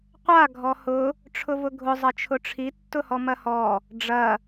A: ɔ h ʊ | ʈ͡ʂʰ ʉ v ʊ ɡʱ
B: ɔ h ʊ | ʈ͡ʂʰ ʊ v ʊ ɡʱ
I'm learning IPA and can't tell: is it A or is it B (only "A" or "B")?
B